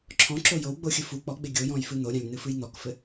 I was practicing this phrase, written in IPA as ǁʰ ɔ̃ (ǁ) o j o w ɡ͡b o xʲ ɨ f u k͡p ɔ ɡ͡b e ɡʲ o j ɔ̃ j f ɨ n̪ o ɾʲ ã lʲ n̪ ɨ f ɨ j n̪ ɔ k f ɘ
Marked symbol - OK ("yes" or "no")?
yes